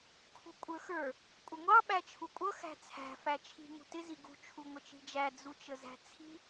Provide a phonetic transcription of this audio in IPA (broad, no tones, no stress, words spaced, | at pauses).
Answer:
kʰṳkʷʼə˞xə˞ | kʷʼəŋʷɑ ɓæt͡ʃʰukʷʼʌ xæ̤t͡sʰæ̤ fæt͡ʃʰi̤ ŋṳtɪ ziɡṳ t͡ʃʰuŋʷət͡ʃi̤d͡ʒæ d͡zut͡ʃəzæ̤t͡sʰi̤